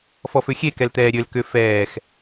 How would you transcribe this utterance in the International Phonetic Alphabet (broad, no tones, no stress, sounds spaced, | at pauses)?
f ɔ f ø xʲ e k ɛ l t̪ ɛː ɾʲ ø l k ʏ f ɛː x